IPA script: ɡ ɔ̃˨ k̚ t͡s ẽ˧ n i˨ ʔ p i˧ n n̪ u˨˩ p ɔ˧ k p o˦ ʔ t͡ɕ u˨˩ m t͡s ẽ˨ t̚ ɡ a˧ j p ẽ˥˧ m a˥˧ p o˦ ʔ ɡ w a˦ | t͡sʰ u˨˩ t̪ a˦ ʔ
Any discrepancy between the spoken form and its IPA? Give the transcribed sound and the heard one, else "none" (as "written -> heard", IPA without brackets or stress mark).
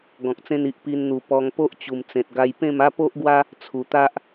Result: k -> ŋ